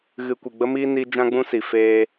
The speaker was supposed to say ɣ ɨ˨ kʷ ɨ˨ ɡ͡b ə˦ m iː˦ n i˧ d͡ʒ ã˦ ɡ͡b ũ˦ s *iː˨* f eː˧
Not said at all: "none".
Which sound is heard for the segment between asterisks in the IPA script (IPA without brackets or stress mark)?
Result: i˨